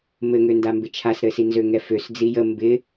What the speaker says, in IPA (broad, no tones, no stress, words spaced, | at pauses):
mɘŋønda mbɪt͡ʃʰasɾɘsi nzøŋɛføs d͡zijə mbɪ